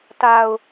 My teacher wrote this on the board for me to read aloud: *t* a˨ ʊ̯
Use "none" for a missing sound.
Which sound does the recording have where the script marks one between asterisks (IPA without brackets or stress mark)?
t